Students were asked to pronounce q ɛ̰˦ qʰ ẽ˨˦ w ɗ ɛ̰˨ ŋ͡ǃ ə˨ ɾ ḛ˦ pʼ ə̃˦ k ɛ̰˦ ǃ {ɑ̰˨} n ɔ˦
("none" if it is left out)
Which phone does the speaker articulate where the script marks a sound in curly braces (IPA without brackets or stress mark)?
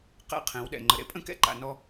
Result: a̰˨